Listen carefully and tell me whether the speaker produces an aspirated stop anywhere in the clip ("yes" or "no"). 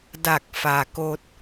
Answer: no